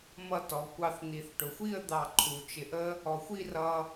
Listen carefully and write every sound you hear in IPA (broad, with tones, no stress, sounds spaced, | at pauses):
m ʌ˧ t ɔ˩˧ kʷ ɑ˧˩ θ n̪ i˩˧ θ ʈ ʊ˩˧ xʷ i˥˧ ə̯ d̪ ɑ˧˩ ǃʰ u˩˧ t͡ʃ ɪ˧˩ ʔ ə˥ | ɔ˩˧ xʷ i˥˧ r ʌ˧